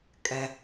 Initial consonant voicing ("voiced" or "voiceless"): voiceless